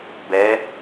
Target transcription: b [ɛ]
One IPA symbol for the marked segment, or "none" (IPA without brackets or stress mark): ɛ